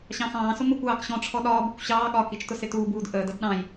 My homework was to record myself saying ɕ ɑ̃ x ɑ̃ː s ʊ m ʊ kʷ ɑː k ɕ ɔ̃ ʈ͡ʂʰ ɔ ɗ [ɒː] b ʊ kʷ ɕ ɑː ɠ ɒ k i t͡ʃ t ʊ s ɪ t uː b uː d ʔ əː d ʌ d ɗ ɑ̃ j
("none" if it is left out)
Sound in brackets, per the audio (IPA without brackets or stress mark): ɒː